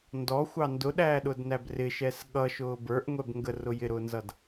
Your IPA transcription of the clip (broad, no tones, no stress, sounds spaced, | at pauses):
n d ɔ xʷ ɑ n d ʊ ɗ æː ɗ ʊ d n æ b r ɪ ʃ ɛ s ɠ ʌ ʃ ʊː b ə˞ ʔ ŋʷ ɛ b ŋ ɡ ə r ʊ j ɪ ɾ ʊː n z ʌ d